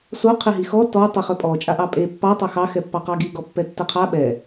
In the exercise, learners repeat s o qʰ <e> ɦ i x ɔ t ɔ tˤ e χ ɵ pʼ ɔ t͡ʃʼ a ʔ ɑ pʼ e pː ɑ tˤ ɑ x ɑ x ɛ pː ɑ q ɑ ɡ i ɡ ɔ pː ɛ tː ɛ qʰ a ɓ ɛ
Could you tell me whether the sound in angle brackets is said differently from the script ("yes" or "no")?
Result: no